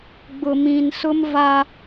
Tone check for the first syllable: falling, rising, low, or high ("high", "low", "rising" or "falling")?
low